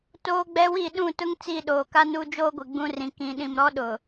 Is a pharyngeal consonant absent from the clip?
yes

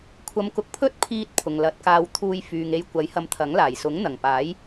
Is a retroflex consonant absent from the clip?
yes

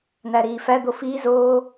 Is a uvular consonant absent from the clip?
yes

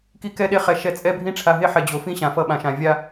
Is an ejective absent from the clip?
no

